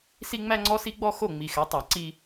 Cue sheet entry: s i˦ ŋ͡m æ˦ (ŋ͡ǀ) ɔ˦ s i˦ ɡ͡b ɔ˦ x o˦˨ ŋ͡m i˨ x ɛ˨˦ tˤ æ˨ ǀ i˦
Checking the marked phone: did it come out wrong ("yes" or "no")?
no